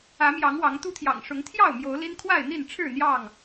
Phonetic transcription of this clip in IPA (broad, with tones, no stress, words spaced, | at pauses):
ä˨˦mjɑ˨˦ŋ wɑ˨˦ŋt̪u˦ t̪ʰjɑ̰˨˩ŋʂʊ˨˦ŋt̪ʰjɑ˥˨ʊ̯ mjo˨˦ʊ̯li˦n kʰwa˥˨ɪ̯n̪i˥˨nʈ͡ʂʰɻ̩˥˨ n̪jɑ˥˨ŋ